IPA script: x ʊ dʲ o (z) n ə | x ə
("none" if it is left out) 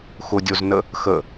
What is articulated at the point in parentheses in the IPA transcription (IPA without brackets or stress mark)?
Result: z